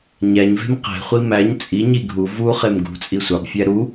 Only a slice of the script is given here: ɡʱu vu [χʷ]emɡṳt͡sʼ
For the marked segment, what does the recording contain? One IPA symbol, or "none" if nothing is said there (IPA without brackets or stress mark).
χ